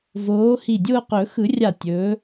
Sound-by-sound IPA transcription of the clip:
v oː˨˦ h i˧˩ dʲ ʊː˥˧ q ɵ˨˩˦ x ɯ˨˩˦ rʲ a˧˩ tʲ ɵ˨˦

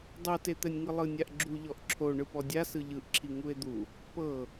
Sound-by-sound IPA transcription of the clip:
dˤ o t e t̪ ɛ nʲ ŋ ɯ lˠ ɯ nʲ a ʔ ɡ͡ǁ u ʎ ɔ ʔ ǁʰ o ɳ ɯ p ɔ dʲ a s ɯ ʎ ɯ ʔ ǁʰ i ŋ u e̯ d̪ u | p ɤ

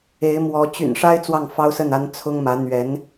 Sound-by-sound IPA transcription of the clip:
e˧˥ ɪ̯ m w ɔ˧˥ t͡ɕ y̰˨˩ n ʂ a˥ ɪ̯ t͡s w ɑ˥˩ ŋ f ɑ˥ ʊ̯ s ə˥˩ n a˥ n t͡sʰ ʊ˥ ŋ m ä˧˥ n̪ ɥ ɛ˧˥ n

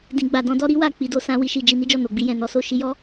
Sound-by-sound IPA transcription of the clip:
d ĩ˨ ɡ͡b a˨ d ɔ̃˧ d ɔ˦ ɾ i˦ w a˦˨ k͡p i˧ d o˧ s ã˦ w i˧ ʃ i˧ d͡ʒ i˧ n i˦ d͡ʒ ɔ˦˨ n o˨ ɡ͡b i˧ j ɛ̃˨ n ɔ˨˦ s o˦ ʃ i˧ j ɔ˦

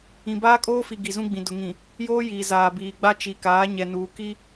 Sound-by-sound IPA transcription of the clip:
ĩ˨ b aː˦ kʼ oː˦ f i˨ ɡ i˨ z ũ˦ ɡ͡b ĩ˨ d ʊ˨ ŋ ĩ˨ | j oː˦ j iː˨ z aː˨ b iː˨ ɡ͡b a˦ t͡ʃ i˨ k aː˨˦ ɲ ɛ˨ n uː˨ k i˦

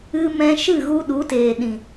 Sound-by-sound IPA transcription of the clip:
ɨ˧ m ɛ̃˧ ʃ ɨ˦˨ ɣ u˧ ɗ u˨˦ t eː˨ ɗ ĩ˨

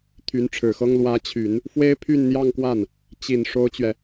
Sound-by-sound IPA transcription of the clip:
t̪ʰ y˧˥ n ʈ͡ʂʰ ɻ̩˨˩ x ɤ˥ ŋ l w ä˧˥ t͡ɕʰ y˨˩˦ n | f w e˥ ɪ̯ pʰ y˥˧ n n̪ j ɑ˥˧ ŋ k w a˥˩ n | t͡ɕ i˨˩ n ʂ o˥ ʊ̯ t͡ɕ ɥ ɛ˨

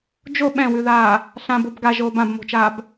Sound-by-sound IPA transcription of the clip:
d͡ʒ o ɓ ɛ̃ w ʉ ð aː | ɬ ã b o b ɡ a ʒ oː b ã b m o̤ t͡ʃ aː b

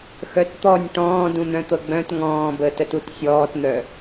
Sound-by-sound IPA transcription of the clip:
x œ t t̪ ɔ nʲ ʈ ɔ̃ː d ũ n̪ œ̃ t̪ ɤ ɡ͡b œ̃ t ŋ ɔ̃ː b əː t ə t u t sʲ ɔː t n̪ œ

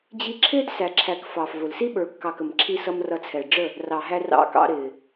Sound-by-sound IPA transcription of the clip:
d͡ʑ i˧ ǁʰ ɪː˦ d s æ˨ ǁʰ æ˨ k f ɑː˨ f v ʊ˨ l s i˦ ɓ ə˞˨ kː ɑ˨ k ə˨ m ǁʰ i˧ s ʌ˧ m r ʌ˧ t͡sʰ ɛ˨ ɖ͡ʐ ə˦˨ | r ɑ˨ ɦ æ˧ r ɑ̰˧ k ɑ̰˧ ɾ ɪː˨

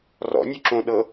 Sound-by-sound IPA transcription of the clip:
r ɔ̰ nʲ u ǁ õ ɗ ɤ

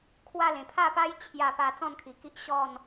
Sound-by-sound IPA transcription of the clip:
kʰ w a˥˧ l ẽ˨˩ pʰ a˥˧ p a˦ j t͡ɕʰ j a˧ p a˧ t͡s ɔ̃˥˧ n kʰ i˨˩ k i˦ ʔ ɕ ɔ˥˧ n

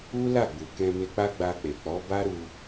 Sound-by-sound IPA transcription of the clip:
u˦ l a˦˨ ɡ͡b u˨ k ɛ̃˧ m e˧ k͡p a˦ ɡ͡b a˧ k͡p e˨ k͡p ɔ˨˦ b a˦ ɾ u˧

